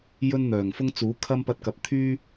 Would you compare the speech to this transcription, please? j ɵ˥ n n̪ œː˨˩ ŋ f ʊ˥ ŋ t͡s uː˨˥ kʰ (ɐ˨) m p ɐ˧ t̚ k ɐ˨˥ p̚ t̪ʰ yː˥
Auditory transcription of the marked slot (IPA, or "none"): ɐ˥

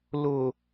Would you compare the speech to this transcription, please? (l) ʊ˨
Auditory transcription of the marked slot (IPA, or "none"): l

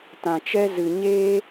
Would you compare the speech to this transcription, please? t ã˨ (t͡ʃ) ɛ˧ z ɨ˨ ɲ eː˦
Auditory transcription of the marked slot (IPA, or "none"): t͡ʃ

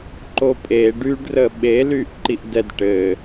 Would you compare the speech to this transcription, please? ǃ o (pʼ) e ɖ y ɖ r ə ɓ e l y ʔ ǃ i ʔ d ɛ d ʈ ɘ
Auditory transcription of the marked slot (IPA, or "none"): pʼ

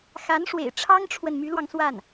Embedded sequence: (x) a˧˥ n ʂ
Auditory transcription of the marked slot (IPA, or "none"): x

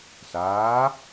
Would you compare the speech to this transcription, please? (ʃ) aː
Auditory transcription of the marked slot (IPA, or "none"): s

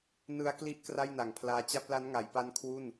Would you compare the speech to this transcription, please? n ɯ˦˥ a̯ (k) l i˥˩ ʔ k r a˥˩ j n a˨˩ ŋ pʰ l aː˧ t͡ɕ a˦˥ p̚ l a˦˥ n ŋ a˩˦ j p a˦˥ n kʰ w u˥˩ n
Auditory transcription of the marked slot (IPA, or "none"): k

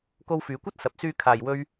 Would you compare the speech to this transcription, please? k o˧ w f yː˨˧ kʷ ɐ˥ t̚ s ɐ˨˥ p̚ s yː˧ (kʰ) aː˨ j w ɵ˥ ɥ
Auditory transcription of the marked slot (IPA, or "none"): kʰ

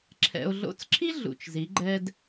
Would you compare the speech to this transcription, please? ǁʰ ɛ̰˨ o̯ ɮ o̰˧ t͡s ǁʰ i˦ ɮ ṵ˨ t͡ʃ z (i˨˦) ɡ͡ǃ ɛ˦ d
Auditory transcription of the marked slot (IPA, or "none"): i˨˦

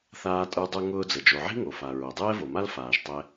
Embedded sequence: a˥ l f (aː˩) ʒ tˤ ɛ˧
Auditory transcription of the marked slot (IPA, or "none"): aː˩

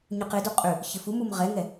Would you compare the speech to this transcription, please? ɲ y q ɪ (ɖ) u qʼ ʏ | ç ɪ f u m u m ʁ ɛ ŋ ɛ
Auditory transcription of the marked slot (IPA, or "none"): d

